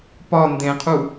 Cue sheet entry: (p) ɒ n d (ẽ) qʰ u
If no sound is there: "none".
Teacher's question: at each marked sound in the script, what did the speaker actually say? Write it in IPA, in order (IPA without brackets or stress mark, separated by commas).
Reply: p, ẽ